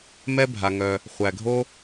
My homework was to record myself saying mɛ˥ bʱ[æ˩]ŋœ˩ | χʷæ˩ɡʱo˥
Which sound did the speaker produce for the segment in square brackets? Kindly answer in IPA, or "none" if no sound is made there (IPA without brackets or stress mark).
a˩